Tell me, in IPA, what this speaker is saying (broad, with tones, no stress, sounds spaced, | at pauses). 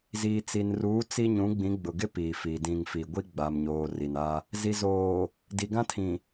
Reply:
z iː˨ t͡s i˨ n r uː˨˦ t͡s i˦ ɲ ũ˨˦ ɡ͡b ĩ˨˦ ɡ͡b ʊ˨ ɡ ɪ˦ p iː˨ f iː˨ d ĩ˨ ŋ f i˨ ɡʷ i˦ ɡ͡b a˨ m ɲ oː˨ r i˨ n a˦ | z i˨ z oː˨ | d i˨ ɡ ã˦ tʰ ĩ˨